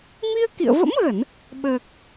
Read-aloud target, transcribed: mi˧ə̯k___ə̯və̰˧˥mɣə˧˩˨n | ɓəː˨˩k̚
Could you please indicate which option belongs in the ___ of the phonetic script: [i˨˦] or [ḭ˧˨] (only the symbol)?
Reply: ḭ˧˨